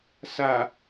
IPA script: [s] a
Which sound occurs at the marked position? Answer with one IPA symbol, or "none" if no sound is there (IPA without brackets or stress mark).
s